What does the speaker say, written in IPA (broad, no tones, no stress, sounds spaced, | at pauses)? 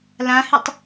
l ã h ɨ tˤ